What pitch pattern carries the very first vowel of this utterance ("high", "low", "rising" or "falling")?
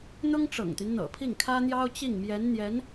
high